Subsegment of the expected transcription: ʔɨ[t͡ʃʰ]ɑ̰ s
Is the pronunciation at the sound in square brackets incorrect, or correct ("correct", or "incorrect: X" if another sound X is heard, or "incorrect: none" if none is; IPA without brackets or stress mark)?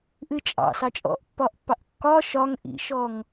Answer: incorrect: t͡ʃʼ